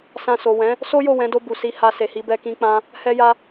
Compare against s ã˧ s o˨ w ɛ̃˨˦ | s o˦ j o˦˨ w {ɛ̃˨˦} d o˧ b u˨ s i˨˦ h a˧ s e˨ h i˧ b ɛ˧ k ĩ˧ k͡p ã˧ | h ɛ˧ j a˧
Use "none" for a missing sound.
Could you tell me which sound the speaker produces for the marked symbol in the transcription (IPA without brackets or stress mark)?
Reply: ɛ̃˨˦